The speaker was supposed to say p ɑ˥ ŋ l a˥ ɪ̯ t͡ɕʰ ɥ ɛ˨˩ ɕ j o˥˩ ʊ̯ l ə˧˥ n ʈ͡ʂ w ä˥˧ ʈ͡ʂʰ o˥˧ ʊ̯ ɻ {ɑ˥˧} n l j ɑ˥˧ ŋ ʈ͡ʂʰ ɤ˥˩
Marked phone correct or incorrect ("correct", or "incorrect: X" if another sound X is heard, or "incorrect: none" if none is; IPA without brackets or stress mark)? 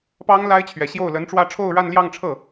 incorrect: a˥˧